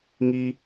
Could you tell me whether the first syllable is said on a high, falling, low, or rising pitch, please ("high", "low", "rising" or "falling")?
high